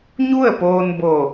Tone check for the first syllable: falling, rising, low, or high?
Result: falling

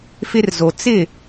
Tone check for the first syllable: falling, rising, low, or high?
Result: high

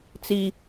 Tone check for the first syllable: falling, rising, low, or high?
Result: high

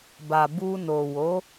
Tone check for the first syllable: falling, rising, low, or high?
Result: low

